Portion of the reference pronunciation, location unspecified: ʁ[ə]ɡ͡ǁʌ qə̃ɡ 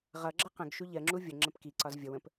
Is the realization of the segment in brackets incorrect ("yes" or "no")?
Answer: yes